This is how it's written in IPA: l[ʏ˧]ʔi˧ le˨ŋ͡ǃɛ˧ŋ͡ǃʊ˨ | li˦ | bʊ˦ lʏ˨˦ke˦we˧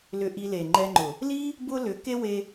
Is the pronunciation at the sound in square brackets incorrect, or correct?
correct